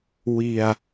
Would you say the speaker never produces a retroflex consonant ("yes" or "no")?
yes